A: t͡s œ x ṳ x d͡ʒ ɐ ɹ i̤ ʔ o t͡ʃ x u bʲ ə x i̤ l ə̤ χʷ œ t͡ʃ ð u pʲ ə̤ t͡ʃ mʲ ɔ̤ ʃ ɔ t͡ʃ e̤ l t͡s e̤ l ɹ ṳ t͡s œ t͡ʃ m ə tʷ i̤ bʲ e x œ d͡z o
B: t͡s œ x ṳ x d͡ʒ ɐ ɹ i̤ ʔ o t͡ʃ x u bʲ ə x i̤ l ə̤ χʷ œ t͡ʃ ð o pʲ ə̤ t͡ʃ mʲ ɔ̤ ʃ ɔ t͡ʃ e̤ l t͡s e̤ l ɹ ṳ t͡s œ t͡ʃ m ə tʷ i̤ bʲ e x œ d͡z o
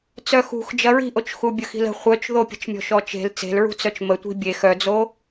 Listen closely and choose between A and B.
B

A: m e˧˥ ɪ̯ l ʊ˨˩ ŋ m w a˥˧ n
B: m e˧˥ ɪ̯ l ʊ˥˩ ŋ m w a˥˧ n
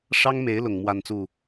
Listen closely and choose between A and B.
A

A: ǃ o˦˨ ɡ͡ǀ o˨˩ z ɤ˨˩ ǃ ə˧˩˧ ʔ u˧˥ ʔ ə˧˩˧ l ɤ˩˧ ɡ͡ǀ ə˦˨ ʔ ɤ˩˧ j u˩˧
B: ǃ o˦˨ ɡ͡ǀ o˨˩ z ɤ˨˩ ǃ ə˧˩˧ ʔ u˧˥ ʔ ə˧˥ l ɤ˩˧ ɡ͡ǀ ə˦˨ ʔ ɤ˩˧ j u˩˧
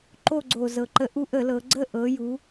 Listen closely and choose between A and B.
A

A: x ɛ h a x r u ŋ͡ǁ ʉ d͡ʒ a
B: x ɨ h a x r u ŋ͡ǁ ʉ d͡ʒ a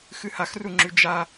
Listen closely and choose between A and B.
B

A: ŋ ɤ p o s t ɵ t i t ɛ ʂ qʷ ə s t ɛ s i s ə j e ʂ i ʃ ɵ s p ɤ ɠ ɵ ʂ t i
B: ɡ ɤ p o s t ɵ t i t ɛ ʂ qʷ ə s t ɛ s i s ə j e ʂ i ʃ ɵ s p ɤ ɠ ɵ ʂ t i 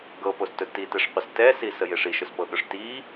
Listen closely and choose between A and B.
B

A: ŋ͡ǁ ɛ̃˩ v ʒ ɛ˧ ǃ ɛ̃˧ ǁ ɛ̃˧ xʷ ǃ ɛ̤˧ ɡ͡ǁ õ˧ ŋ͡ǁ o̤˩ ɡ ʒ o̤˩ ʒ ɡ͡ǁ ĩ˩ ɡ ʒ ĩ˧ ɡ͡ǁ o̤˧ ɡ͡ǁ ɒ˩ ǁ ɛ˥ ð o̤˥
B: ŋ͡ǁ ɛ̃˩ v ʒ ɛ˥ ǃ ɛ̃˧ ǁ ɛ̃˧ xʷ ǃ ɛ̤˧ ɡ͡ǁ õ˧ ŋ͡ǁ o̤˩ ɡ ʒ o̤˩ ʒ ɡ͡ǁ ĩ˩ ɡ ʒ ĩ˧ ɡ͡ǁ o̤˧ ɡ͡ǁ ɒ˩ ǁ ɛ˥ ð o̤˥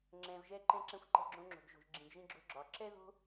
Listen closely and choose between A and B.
A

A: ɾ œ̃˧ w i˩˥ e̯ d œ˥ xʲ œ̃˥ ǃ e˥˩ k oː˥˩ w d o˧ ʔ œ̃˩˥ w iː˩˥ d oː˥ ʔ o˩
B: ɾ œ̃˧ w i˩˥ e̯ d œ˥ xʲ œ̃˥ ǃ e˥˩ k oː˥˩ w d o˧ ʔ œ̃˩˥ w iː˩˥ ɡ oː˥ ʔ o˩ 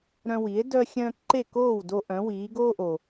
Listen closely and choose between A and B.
B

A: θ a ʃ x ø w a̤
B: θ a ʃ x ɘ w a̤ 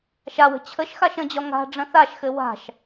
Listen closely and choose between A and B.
B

